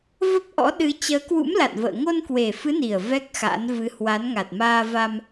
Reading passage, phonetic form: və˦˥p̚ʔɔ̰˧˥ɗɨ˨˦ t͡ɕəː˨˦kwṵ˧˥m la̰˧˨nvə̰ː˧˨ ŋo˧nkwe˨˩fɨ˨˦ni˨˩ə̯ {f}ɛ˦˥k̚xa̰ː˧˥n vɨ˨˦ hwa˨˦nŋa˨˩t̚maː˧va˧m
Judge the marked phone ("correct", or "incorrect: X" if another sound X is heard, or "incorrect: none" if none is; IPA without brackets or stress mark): incorrect: v